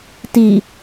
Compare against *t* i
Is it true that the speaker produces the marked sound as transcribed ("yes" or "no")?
yes